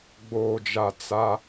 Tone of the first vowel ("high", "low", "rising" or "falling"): low